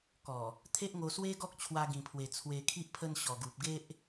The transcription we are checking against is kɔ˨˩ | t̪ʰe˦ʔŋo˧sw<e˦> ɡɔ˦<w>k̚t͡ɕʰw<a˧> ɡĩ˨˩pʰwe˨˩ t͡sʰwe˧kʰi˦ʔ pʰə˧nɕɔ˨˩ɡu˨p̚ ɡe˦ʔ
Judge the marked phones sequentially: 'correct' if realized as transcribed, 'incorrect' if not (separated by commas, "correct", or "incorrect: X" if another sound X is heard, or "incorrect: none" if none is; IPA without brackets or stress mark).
correct, incorrect: none, correct